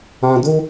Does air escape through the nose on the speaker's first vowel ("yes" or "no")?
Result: yes